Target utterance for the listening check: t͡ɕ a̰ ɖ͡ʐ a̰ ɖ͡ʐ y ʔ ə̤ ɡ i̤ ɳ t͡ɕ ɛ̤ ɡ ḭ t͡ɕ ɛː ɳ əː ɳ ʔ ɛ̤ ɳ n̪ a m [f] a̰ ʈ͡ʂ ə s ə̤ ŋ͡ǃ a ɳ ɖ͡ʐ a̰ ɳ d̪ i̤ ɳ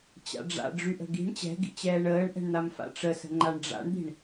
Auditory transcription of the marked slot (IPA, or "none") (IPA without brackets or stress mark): f